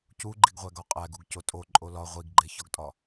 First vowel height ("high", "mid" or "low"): high